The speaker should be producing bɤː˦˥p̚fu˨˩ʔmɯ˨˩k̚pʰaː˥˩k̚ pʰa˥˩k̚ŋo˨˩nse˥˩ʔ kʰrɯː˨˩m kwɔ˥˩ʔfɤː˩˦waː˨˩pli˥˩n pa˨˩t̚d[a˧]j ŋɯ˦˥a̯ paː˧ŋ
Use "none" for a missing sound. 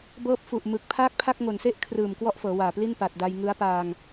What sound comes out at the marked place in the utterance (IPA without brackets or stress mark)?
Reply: a˧